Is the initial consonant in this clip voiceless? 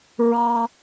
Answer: no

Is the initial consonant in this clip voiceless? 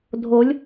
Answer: no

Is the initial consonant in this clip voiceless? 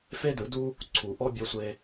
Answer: yes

